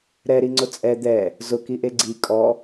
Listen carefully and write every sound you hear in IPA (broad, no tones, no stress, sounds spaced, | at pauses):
ɾ ɛ ɾ i ŋ͡ǀ ʊ t͡sʼ ɛ d̪ ɛ | z ʊ k i ʔ e ɡ͡ǀ i kʼ ɔ